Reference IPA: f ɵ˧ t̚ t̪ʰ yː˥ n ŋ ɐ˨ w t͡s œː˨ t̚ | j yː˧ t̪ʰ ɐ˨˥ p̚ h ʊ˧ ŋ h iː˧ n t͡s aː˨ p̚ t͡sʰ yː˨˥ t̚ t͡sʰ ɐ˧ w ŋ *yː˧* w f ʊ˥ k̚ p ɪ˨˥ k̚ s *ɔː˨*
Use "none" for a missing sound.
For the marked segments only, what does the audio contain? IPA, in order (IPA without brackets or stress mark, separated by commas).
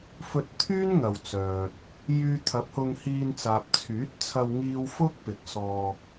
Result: iː˧, ɔː˧